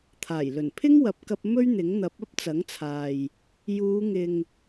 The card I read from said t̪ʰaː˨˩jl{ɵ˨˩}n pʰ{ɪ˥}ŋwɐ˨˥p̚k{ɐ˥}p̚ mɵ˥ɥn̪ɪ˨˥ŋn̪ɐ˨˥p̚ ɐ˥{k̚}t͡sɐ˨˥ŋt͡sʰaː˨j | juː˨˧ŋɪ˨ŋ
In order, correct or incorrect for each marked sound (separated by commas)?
correct, correct, incorrect, incorrect